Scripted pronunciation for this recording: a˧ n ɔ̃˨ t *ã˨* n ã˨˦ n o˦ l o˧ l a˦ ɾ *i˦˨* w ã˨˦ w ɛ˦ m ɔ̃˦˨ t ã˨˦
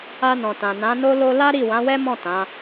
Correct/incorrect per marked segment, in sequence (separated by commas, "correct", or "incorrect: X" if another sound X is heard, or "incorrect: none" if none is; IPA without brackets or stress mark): correct, correct